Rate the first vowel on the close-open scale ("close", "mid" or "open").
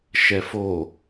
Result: mid